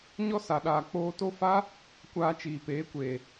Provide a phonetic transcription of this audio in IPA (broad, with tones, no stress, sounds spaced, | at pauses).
ɲ ɔ˦ s a˨ ɗ aː˨ k͡p oː˧ t o˦ f a˦ | kʷ aː˧ t͡ʃ iː˨ p eː˨˦ kʷ eː˨